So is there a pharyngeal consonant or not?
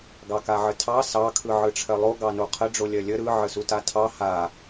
yes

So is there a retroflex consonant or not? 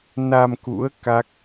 no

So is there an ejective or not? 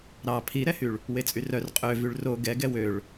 yes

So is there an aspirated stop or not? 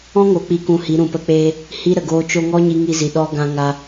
no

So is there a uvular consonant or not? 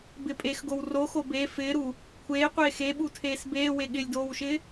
yes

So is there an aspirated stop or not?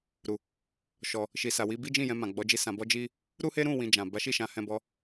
no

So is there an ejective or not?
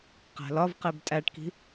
yes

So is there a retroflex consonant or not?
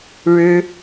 yes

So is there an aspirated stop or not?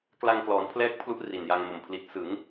yes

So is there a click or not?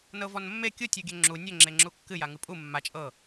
yes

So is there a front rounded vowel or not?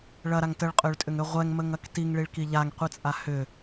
yes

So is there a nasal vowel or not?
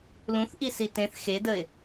yes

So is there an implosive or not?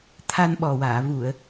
yes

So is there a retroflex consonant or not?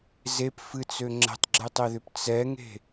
no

